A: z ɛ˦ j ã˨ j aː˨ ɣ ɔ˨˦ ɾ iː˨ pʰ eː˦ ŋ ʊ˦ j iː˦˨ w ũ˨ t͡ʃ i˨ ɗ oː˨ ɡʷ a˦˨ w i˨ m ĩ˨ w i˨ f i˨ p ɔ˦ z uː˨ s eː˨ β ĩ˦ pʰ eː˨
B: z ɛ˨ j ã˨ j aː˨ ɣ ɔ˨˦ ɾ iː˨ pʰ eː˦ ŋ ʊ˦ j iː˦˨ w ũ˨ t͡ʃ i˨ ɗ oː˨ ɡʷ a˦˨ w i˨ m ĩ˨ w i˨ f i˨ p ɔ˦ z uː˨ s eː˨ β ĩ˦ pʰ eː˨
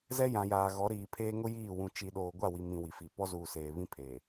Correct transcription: A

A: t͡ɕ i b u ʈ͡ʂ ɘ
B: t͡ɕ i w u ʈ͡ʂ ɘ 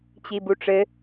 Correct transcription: A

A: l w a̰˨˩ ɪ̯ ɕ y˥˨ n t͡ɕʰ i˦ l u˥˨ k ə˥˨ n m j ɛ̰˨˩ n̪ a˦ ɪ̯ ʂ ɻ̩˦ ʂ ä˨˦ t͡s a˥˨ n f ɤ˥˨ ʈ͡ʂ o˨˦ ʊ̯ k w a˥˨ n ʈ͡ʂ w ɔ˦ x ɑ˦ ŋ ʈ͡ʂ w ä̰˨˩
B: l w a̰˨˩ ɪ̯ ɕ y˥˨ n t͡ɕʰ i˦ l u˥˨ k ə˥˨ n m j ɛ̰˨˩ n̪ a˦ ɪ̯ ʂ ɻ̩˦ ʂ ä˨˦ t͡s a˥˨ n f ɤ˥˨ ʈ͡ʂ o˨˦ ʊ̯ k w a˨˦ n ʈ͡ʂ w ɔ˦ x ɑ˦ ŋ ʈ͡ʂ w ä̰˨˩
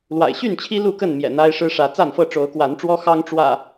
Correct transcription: B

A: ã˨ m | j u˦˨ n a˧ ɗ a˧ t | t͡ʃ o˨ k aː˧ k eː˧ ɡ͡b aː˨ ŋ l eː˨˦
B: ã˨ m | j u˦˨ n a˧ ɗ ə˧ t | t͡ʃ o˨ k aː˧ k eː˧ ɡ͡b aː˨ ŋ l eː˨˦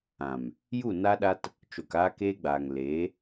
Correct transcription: A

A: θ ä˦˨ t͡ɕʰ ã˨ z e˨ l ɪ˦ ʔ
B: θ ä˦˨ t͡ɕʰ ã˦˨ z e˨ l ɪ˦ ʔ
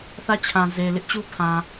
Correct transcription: A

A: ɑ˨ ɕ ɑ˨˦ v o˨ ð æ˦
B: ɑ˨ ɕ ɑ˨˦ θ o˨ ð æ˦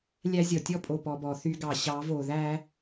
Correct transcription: A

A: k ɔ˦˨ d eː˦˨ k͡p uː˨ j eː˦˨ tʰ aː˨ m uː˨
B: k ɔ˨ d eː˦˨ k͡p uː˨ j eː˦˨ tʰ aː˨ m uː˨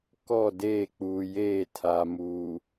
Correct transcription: A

